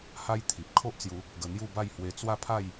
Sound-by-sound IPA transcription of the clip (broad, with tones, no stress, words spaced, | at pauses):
ha˦j t̪ʰi˨p̚ kʰo˦ʔt͡sju˨˦ | ɡə˧n̪ju˥˧ ba˥˧jhwe˧ t͡swa˥˧pʰa˥˧j